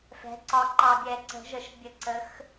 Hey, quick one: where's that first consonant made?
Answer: lips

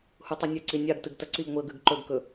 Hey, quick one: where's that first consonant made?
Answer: throat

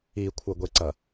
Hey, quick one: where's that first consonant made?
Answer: velum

